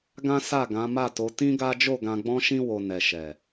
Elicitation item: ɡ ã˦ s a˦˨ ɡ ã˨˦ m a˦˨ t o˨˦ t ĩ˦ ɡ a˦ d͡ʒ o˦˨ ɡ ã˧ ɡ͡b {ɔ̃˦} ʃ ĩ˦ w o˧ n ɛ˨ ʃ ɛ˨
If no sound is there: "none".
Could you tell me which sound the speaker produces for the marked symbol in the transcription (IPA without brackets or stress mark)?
ɔ̃˦